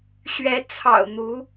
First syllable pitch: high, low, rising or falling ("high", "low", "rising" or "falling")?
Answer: rising